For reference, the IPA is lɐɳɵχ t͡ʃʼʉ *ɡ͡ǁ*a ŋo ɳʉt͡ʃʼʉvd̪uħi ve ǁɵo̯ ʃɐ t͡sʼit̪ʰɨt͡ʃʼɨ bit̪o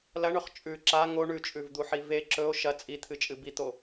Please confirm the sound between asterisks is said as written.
no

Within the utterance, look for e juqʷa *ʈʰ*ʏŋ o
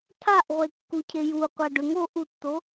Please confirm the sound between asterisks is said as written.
no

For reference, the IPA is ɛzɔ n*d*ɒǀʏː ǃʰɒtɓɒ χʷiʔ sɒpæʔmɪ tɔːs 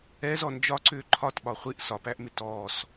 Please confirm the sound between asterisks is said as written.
no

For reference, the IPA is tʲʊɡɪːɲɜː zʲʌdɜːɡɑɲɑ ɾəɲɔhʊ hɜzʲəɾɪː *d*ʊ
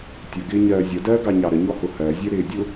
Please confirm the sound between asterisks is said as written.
no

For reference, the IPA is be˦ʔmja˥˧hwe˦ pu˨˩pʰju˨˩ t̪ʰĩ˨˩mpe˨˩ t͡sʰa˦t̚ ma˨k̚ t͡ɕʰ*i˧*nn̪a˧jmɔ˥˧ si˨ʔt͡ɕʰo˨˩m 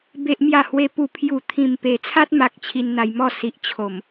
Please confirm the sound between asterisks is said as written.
yes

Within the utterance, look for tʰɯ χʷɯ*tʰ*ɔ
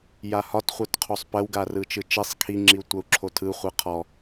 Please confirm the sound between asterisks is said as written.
no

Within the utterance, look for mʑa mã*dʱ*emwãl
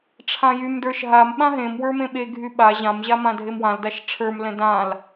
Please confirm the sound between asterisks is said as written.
yes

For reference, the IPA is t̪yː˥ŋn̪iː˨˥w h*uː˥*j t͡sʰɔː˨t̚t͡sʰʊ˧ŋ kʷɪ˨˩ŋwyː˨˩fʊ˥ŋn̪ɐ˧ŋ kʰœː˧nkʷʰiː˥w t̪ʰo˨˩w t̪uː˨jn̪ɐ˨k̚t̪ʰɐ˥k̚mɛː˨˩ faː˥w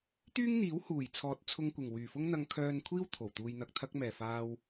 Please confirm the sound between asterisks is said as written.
no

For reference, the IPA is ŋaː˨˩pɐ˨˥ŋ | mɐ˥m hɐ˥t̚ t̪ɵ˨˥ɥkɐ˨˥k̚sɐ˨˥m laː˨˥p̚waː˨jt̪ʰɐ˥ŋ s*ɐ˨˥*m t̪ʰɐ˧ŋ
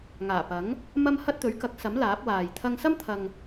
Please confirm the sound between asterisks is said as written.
no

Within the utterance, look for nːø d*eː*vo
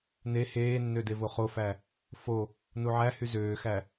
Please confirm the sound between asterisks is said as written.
no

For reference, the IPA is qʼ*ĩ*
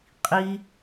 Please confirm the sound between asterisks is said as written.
no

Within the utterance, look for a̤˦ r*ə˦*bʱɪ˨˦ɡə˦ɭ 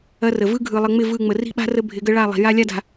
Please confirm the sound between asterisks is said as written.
yes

